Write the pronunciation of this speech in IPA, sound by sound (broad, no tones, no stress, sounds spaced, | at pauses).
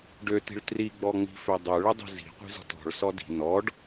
ɖ ø t i̤ ɭ t r i ɡ͡b ɔ ŋ͡m i̤ f ø dˤ ø ɭ ə dˤ i̤ z i̤ qʷ i̤ z ɔ̤ t ɔ̤ ɭ s ɔ d i̤ n ɔ ɖ